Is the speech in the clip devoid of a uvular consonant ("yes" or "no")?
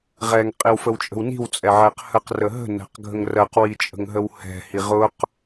no